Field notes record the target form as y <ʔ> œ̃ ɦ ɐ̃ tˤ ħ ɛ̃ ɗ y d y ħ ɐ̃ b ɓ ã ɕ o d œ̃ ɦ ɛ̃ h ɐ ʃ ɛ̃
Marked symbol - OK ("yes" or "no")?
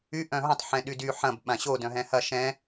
yes